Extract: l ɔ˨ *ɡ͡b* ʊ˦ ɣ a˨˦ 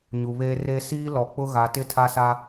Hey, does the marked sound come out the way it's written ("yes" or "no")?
no